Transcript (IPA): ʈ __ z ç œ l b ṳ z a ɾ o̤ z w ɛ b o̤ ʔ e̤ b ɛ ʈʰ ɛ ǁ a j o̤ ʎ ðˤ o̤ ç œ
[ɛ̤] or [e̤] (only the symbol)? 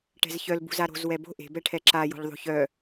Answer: ɛ̤